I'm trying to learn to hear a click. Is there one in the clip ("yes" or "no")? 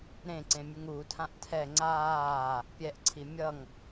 yes